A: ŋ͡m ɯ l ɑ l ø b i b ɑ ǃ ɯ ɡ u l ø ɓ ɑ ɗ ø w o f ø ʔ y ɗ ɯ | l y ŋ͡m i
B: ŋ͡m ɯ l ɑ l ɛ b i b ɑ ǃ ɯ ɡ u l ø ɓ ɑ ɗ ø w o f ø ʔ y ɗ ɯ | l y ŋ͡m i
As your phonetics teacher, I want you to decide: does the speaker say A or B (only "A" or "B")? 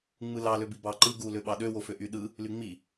A